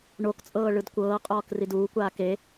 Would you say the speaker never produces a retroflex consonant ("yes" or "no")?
no